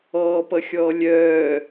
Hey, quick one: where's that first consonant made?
lips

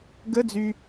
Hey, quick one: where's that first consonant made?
velum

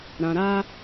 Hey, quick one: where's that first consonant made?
tongue tip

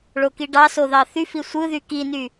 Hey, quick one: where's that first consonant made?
retroflex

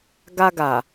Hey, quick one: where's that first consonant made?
velum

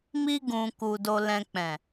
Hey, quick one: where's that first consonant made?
lips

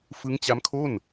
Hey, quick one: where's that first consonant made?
lips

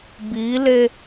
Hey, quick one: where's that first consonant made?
lips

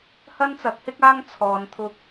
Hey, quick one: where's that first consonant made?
throat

